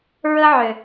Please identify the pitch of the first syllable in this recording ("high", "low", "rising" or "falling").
high